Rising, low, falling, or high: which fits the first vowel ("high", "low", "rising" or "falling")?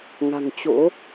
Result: low